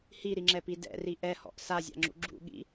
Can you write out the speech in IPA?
h i ɾ i ŋ͡ǁ ɛ p i d ɛ̰ r i ʔ ɛ h ɔ̰ ʔ s a zʲ a̰ ŋ͡ǁ ṵ ɡ͡ǁ ṵ ɠ ḭ

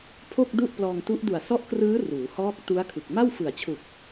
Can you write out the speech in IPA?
pʰ o˥˩ k̚ d u˥˩ ʔ p l ɔː˧ ŋ t u˦˥ ʔ d u˨˩ a̯ s ɔ˦˥ ʔ k r ɯː˦˥ r uː˩˦ h ɔː˦˥ k̚ t u˦˥ a̯ kʰ ɯ˨˩ k̚ m a˥˩ w f ɯ˨˩ a̯ t͡ɕʰ u˨˩ k̚

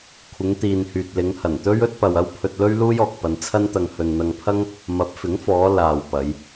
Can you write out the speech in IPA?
kʷʰ ɪ˨˧ ŋ t̪ iː˨ n h yː˨ t̚ l ɪ˨˧ ŋ h ɐ˨˩ n t̪ ɵ˥ ɥ ɵ˥ t̚ p ɐ˨ w ɐ˥ w pʰ ɵ˧ t̚ l ɵ˥ ɥ l uː˥ j ɔː˨ k̚ p ɐ˧ n t͡sʰ ɐ˥ n t̪ ɐ˧ ŋ h ɵ˨ n n̪ ɐ˧ ŋ pʰ ɐ˥ ŋ | m ɐ˨˥ p̚ f ɪ˨˥ ŋ f ɔː˨˧ l aː˨ w p ɐ˨˧ j

